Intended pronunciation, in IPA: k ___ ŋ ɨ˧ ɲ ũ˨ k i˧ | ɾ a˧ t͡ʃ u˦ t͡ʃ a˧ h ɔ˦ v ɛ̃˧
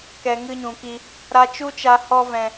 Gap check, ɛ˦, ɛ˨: ɛ˨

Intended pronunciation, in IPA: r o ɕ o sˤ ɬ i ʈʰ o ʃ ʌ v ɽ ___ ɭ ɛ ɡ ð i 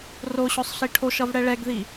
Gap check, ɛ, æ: ɛ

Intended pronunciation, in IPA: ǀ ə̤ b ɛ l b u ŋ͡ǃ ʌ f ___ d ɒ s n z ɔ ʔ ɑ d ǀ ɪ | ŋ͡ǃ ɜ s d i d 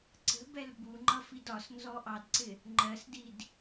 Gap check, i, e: i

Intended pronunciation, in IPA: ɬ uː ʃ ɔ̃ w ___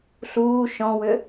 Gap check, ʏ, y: ʏ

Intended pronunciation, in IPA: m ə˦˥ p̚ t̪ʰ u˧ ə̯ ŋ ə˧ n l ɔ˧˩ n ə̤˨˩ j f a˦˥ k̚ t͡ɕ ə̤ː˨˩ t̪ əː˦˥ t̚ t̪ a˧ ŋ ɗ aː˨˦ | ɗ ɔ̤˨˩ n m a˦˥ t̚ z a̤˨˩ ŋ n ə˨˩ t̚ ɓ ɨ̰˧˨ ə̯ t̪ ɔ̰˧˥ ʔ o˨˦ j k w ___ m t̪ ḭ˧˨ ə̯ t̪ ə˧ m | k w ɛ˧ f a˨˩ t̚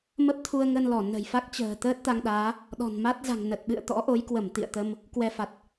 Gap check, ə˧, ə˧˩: ə˧˩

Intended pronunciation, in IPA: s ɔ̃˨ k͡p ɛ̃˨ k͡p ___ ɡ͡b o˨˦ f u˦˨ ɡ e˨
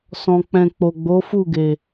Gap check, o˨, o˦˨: o˨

